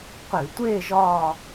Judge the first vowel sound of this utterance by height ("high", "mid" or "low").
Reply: high